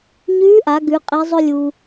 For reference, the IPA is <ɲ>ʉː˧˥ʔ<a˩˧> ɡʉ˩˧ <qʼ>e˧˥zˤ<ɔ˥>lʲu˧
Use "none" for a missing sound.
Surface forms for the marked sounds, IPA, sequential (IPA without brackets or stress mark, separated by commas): ɲ, a˩˧, qʼ, ɵ˥